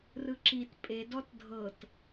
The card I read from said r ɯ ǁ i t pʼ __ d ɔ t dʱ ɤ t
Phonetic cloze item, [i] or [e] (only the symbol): e